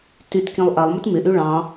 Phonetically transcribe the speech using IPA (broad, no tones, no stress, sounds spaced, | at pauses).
t y t k ĩ lˠ ʔ a lˠ m ɵ t m ɪ ʔ y ɭ ɑ̃